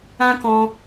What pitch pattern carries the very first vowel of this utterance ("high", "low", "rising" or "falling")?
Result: high